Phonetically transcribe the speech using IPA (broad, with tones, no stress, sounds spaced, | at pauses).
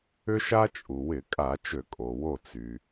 ʏ˦ ʃ a˦ t͡ʃʼ u˩ w ɪ˧˩˧ kʼ a˧˩˧ t͡ʃ ø˧˩˧ kʼ o˩ w o˧˩ t͡s y˩